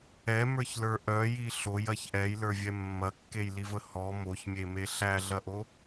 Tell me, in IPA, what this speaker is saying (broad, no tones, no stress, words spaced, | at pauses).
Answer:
ɛmə˞çlə˞ ʔœji ɬojɐç ʔɛjlə˞vʲɛ mːɐkːejlivə hɔ moçmʲeme ɬæɮɐʔo